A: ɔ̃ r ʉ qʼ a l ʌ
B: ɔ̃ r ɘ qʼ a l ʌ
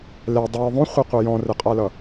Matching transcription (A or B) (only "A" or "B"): B